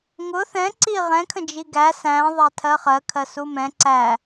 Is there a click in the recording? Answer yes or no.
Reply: yes